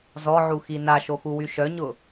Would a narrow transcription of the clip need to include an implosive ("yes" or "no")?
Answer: no